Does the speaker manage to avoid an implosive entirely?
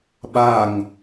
no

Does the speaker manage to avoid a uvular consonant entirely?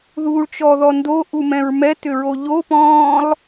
yes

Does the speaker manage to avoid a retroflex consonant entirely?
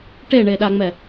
no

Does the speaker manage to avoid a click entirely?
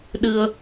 yes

